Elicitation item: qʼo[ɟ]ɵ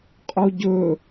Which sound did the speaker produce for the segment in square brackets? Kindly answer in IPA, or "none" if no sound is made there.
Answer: ɟ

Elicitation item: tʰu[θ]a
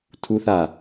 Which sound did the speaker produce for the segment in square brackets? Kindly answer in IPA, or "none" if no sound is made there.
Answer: θ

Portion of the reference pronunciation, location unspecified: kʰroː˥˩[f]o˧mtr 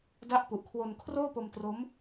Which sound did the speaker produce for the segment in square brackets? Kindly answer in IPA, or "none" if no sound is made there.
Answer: p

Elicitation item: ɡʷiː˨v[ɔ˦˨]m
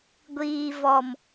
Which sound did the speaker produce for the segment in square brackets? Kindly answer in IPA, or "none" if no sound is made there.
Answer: ɔ˨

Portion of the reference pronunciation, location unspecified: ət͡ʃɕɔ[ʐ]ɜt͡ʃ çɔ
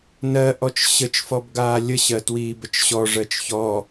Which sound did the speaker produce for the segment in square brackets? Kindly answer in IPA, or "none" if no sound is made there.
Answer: ʐ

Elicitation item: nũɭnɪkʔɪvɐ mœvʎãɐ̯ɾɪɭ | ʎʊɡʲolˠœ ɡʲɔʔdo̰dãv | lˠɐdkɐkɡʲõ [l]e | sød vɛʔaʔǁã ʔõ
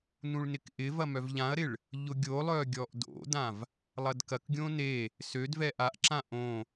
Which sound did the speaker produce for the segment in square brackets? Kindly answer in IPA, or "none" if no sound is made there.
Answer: n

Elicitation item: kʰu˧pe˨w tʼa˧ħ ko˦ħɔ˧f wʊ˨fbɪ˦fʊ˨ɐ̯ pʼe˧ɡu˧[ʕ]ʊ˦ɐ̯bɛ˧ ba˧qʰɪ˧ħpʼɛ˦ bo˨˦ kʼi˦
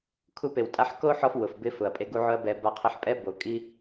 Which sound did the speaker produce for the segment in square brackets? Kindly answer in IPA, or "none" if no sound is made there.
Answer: ʕ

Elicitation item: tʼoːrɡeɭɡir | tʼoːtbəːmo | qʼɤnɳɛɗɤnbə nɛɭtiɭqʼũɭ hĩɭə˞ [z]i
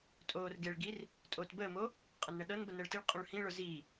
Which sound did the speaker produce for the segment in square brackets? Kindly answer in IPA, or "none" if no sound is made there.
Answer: z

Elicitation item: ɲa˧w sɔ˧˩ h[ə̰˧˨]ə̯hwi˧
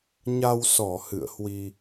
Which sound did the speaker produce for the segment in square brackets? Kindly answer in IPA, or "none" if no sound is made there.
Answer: ɨ̰˧˨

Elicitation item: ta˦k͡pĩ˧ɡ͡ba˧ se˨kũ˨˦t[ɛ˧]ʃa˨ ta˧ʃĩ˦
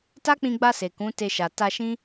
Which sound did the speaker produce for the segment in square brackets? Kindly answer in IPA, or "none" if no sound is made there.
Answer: e˧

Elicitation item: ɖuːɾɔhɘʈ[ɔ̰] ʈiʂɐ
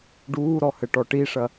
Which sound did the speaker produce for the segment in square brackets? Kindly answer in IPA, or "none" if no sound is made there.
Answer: ɔ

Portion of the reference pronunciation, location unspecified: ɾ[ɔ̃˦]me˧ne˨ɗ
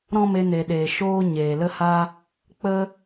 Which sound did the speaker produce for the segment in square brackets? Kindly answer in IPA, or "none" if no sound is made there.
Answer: ɔ̃˦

